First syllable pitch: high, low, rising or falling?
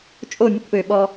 falling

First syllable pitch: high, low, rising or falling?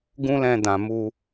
high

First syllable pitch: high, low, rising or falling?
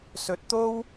rising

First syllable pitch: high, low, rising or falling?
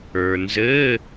low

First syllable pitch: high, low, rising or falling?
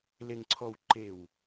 low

